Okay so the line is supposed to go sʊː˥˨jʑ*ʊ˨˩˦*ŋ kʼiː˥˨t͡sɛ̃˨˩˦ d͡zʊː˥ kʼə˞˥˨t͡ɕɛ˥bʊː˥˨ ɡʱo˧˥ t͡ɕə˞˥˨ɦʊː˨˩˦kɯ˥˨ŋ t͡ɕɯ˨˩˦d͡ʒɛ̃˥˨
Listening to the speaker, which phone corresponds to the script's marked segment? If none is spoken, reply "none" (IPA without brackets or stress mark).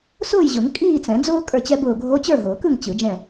ʊ˨˩˦